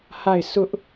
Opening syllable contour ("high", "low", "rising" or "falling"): falling